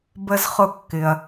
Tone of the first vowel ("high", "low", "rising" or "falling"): low